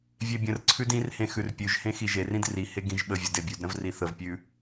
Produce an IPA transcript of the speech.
vʲ e bʲ ə̃ r ǀʰ ʉ d ĩ r h ẽ x ʉ r pʲ ʉ ʒ h ẽ x i ʒ e r ĩ d r i h e ɡ ĩ ʒ ɓ ə vʲ ə d e bʲ ʉ d ɾ ə̃ v r i θ ə v pʲ ʉ

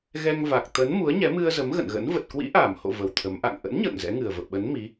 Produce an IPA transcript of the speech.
ɣ ɛ˧ ŋ v a˨˩ k̚ t̪ ə˨˦ n m u˨˦ ə̯ ɲ ɛ˨˦ m ɨ˧ ə̯ z ə˨˦ m ɣ ə̰˧˨ n ɣ ə̰˧˥ n v ə˨˩ t̚ k w ḭ˧˥ ʔ aː˧˩ m h o̰˧˨ v ə˨˩ w t̪ʰ ə˨˦ m ʔ a̰˧˨ ŋ ʔ ə̰˧˥ n ɲ ə̰ː˧˨ ŋ z ɛ̰˧˥ ŋ ɨ˨˩ ə̯ v ə̰˧˨ w ɓ ə˨˦ n m i˨˦

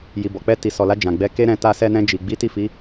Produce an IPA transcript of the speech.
j i˨ b ɔ˨ k͡p ɛ˧ t i˨ s ɔ˨ l a˧ d͡ʒ ã˨ ɡ͡b ɛ˧ k e˦ ɾ ɛ̃˧ t a˧ s ɛ˧ n ɛ̃˧ d͡ʒ i˨ ɡ͡b i˨˦ t i˦˨ f i˨˦

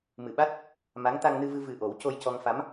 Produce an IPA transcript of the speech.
m ɨ˨˩˨ ɓ a˦˥ t̚ | m a˧˥ ŋ t̪ a˧ ŋ n ɨ˧ v ɨ˧ v ɨ˨˩ ʔ o˨˩˦ w c o˧ j c ɔ˧ ŋ f a˧˥ m

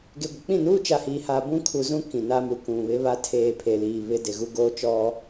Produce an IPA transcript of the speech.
ɡ e˨ ɡʷ ɪ˨ k͡p ĩ˦˨ n uː˦ t͡ʃ a˨ h iː˨ h aː˨ b ũ˦ kʰ u˨ z ũ˦ k ĩ˨ n a˦ m u˨ k ũ˨ β ɪ˦ β a˦ tʰ eː˨ pʰ e˨ l iː˨ β ɪ˦ d ɪ˨ ɣ u˦ ɡ oː˦ t͡ʃ ɔ˦

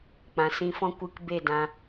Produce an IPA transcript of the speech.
k͡p ã˨ s ĩ˧ f ɔ̃˦ kʷ ɨ˧ k b e˦˨ d ã˧

